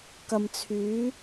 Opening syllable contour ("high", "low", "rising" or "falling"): low